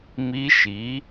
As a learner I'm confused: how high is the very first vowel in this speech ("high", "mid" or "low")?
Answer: high